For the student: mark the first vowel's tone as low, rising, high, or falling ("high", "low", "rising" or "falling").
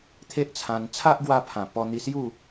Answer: high